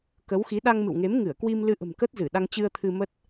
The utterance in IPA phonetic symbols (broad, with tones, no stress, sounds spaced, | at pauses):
k ə˨˦ w x i˨˦ ɗ a˧ ŋ m ɨ̰˧˨ w ŋ e˨˦ m ŋ ɨ˧˩ ə̯ k w i˧ m l ɨ˧ ʔ ə̤˨˩ m k ə˦˥ t̚ z ɨ˧˩ ɗ a˧ ŋ t͡ɕ ɨ˧ ə̯ t̪ʰ ɨ˧ m ə˦˥ t̚